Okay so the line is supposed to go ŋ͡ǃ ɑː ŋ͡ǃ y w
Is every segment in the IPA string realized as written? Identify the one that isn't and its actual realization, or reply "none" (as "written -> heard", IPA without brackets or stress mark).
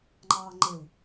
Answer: y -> e